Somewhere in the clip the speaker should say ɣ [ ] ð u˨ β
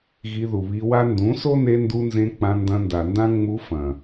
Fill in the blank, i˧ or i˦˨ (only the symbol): i˧